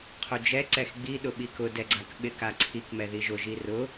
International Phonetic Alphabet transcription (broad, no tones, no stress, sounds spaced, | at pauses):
qʰ o d͡ʒ ɛ ǀ ɛ x ɡ͡b i ɗ ʊ ɓ i k ʊ d ɛ ɡ͡ǀ a k ɓ ɪ k a ǀʰ i k m ɛ ð i ʒ ʊ ʒ i r ʊ